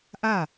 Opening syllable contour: falling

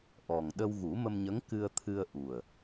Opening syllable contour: low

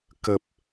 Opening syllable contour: low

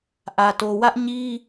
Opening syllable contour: low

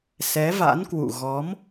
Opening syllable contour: rising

